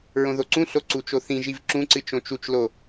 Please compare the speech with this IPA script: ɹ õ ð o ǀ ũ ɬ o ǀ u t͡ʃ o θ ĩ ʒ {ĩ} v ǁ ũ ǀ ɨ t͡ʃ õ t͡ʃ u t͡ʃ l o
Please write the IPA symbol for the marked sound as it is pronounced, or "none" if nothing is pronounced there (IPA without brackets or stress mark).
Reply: i